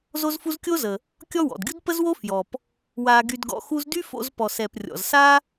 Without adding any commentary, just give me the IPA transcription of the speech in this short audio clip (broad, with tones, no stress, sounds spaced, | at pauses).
z o˥ z f u˥ z kʲ o˥ z ə˩ | kʲ ɔ˥ w ɔ̰˩ d ɡʲ u˥ d p ə˥ z w o˥ f j ɔ˩ p | w a˧ ɡ y˧ d ɡ ɔ̰˧ x u˥ z d y˥ f o̰˧ z p ɔ˩ s ɛ˩ p rʲ ɔ̰˩ z s a˥